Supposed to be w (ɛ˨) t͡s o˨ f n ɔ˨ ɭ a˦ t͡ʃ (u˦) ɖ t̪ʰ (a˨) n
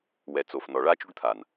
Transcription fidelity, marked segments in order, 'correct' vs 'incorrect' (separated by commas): correct, correct, correct